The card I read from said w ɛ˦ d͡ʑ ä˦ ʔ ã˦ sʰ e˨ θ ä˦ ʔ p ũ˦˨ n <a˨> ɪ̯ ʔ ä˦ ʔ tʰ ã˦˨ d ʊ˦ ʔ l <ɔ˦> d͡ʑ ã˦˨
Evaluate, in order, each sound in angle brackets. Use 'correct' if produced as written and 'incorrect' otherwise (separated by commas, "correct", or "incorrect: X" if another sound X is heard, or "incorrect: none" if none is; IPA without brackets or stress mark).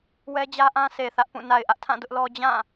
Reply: correct, correct